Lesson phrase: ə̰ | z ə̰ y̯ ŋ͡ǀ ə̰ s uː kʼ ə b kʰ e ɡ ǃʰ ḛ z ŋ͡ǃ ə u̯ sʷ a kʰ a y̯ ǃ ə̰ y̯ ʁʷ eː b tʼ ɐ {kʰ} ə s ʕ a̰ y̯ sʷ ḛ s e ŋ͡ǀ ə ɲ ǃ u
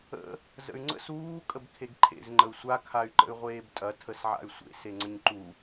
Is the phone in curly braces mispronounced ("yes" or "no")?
yes